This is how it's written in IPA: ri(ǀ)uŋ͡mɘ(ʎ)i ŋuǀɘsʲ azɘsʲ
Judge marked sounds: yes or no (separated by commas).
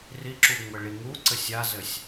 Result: no, no